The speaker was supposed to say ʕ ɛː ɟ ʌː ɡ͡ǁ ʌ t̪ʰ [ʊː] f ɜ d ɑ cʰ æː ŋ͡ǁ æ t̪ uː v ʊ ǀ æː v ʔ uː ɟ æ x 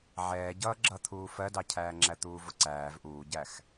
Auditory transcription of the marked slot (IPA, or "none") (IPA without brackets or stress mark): uː